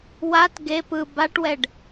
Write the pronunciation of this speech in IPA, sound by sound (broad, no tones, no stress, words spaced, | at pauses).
wat ɡep ɯ baʈwɛɖ